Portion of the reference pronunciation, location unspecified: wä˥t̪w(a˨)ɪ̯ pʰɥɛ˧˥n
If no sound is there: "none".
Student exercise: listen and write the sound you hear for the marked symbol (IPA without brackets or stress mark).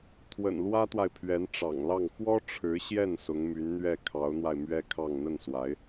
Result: a˨